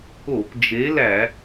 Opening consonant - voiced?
no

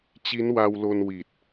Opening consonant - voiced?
no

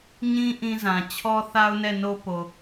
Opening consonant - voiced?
yes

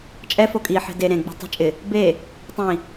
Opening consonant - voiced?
no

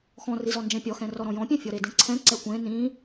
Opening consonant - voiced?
no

